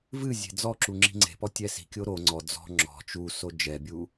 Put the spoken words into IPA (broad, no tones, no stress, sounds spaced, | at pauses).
v ɨ zʲ e̤ d͡z ɔ ǁ u ŋ͡ǁ i̤ ŋ͡ǀ e̤ p ɔ tʲ ɛ s i̤ kʲ o ɾ o ŋ͡ǀ ɔ d͡z ɔ̤ ŋ͡ǁ ɔ̤ t͡ʃ u s o d͡ʒ ɛ bʲ u